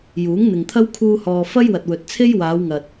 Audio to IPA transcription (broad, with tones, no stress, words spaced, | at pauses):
juː˨˥ŋn̪ɪ˨ŋt̪ʰɐ˥w kʰuː˧hɔː˨ fɐ˥jwɐ˨t̚wɵ˨t̚t͡sʰe˥j waː˨˧wŋɐ˨t̚